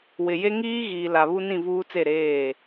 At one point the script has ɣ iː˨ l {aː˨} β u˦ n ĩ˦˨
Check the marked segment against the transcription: incorrect: a˨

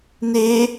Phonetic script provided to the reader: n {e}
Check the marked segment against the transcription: correct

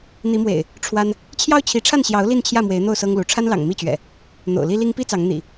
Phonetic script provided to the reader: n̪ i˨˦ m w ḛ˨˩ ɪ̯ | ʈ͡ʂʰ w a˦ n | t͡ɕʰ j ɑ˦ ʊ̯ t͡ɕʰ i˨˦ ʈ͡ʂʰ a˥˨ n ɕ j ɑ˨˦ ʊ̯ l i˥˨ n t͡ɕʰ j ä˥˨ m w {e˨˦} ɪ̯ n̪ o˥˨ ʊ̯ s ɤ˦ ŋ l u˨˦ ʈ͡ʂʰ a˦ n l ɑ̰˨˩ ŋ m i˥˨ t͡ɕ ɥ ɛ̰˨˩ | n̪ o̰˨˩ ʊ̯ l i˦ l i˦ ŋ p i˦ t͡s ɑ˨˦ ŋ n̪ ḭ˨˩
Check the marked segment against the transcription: correct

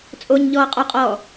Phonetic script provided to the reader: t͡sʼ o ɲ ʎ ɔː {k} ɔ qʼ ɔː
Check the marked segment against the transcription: incorrect: qʼ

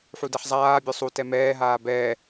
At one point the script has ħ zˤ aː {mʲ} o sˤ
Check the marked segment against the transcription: incorrect: bʲ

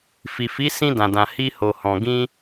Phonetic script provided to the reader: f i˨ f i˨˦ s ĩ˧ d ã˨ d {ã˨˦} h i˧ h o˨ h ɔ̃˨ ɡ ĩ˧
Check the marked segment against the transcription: incorrect: ã˨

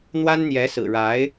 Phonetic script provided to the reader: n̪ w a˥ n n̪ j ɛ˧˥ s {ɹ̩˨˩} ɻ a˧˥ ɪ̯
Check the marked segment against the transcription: correct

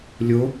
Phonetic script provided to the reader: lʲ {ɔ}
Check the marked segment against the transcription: incorrect: o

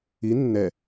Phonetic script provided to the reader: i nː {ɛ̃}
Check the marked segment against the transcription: incorrect: ɛ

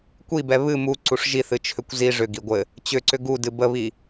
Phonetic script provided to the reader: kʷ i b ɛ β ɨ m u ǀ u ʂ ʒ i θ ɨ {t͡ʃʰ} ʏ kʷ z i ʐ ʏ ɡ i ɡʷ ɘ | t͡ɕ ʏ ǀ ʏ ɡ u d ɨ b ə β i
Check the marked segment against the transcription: correct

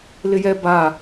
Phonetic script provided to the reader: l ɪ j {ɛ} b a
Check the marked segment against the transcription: correct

